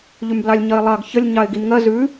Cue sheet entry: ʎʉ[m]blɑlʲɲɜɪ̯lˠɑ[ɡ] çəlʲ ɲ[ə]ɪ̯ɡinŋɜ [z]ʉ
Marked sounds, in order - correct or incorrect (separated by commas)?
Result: correct, correct, incorrect, correct